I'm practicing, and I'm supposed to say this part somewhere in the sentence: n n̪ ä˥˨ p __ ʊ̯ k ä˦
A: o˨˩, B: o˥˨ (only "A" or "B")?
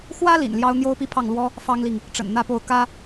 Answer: B